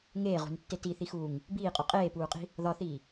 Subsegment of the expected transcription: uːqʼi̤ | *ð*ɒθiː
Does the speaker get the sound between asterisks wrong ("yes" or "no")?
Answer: no